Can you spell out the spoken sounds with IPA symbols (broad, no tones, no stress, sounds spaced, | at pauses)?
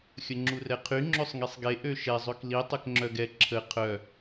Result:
xʲ ə ŋ͡ǁ u r ɛ qʰ y ŋ͡ǁ ø sˤ ŋ i sˤ ɡ e ʔ ø ʃ ɛ zˤ ø k l i tˤ ø k ŋ͡ǁ œ ɡ ɛ ǁʰ ə qʰ œ